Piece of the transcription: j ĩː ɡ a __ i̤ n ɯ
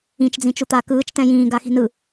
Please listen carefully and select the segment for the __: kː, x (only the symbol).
x